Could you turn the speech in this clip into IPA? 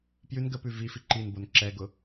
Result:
pjʉn ɡəpʉ vifi ǃinbon ǁɛɡʊ

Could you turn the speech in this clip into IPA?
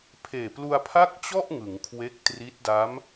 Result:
pʰeː˨˩plu˧a̯pʰa˥˩k̚t͡ɕɔ˥˩ʔ ŋɯ˩˦ŋkʰwe˦˥k̚tri˦˥t̚da˦˥m

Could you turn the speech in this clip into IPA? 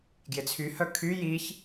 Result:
ɡjɪt͡sʰyhœ kʰy jiç

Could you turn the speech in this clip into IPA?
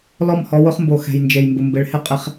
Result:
lɔ˦˨mhɔ˦wʊ˦χmbo˨ xɛ̤˨jnd͡ʒe˨jmbʊ˨mbɪ˨˦ɭ hɪ˦ qʼɪ˦χ

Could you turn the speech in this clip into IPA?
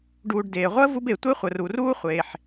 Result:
ɖuː˨ɖdeː˩ ʁʷəː˥vu˦be˩ tʷe˦χʷə˩ru˩ruː˦ χʷeː˩ħ

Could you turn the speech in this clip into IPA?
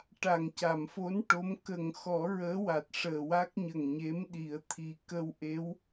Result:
ʈa˨˩ŋca˨˩˨mfo˧˥n ʈo˧˥m kə˨˩ŋ xɔ˨˩˦ ɹəː˧˥wa˨˩t̚ ʂəː˨˩wa˦˥k̚ ɲə˨˩ŋɲe˧˥mɗi˨˩˦ə̯ t̪ʰi˨˩kə˧wʔe˧˥w

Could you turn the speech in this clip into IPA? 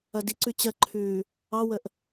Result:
ɐdiǀʉ t͡ɕɜǃʰʉː | ɑwəʔ

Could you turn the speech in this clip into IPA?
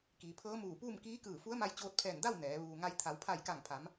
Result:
kiː˩˧pʰɤː˧˥muː˧˩puː˥˨m kiː˧˥kɯː˧˩ fu˧˥ə̯ma˧j t͡ɕoː˧t̚pʰɛː˧˩nda˥˨w nɛː˩˧ ʋuː˩ŋa˧j t̪ʰa˩˧wpʰa˧˩jka˧˩ŋpʰa˩˧m

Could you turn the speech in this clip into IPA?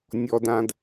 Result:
nʲɔ˨dã˨d

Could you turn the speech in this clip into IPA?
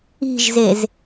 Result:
i̤ʒzez

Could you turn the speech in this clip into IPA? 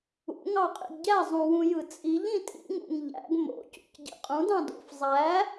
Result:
ṵ ŋɑqʼḭɡɟæ zˤũwũjɯt͡sʼiʎ ĩtʼḭŋ ṵŋʎæ̰ɡ mo̰ cṵcɟḭqʼũd ɑ̃do̰f zˤæ

